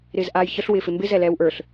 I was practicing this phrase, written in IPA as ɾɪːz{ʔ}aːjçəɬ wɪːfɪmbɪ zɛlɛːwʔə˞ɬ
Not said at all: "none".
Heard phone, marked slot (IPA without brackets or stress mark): ʔ